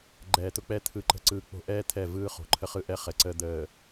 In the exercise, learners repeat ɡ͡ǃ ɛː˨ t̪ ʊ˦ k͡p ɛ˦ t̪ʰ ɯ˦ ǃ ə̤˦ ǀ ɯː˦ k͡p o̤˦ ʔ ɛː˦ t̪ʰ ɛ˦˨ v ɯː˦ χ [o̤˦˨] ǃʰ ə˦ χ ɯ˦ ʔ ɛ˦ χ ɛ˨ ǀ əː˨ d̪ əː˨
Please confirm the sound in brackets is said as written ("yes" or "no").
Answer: no